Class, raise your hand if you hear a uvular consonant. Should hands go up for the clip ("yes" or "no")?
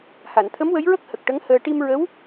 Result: no